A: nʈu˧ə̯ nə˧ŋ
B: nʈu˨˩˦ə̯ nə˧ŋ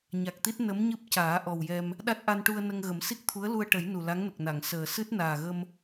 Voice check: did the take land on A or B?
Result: A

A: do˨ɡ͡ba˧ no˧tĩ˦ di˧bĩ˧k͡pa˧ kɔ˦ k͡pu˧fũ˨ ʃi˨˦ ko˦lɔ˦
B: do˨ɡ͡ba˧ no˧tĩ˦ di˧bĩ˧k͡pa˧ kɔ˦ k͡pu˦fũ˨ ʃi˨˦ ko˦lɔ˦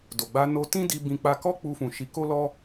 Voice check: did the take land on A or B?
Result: A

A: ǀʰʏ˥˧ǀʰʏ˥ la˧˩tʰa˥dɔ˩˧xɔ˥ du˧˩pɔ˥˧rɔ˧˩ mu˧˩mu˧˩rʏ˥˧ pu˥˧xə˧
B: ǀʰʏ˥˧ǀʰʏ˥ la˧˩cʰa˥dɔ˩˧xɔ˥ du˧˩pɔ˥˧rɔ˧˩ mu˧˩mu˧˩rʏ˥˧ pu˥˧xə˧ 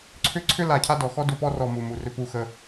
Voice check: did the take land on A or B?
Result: B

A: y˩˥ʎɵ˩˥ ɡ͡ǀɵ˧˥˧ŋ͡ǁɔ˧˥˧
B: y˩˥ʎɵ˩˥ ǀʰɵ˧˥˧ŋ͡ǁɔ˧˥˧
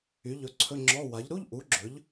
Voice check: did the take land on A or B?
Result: B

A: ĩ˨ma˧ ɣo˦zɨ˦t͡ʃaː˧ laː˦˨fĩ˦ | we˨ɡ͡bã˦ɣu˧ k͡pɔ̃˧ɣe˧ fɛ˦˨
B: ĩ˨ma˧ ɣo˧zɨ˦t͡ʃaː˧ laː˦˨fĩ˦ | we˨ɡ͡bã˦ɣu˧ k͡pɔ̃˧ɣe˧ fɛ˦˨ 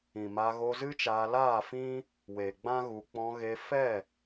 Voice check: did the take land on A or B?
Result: B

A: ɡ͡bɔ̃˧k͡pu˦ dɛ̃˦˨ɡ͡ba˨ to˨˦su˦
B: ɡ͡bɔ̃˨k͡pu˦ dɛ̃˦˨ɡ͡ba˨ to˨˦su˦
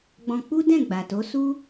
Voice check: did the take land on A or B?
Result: A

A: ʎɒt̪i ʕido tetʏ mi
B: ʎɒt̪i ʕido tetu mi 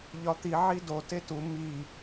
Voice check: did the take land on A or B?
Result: B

